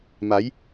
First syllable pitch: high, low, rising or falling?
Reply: rising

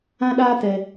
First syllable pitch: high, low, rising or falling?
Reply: high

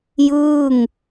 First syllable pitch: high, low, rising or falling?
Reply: falling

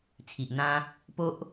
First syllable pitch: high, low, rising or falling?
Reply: low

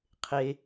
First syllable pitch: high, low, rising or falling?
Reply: low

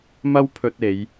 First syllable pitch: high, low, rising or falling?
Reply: high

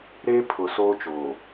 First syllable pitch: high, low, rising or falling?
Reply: high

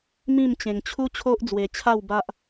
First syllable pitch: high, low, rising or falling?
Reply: falling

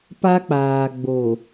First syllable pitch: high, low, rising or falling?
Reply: high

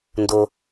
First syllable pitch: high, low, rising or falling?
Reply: high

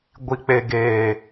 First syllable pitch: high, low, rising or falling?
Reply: low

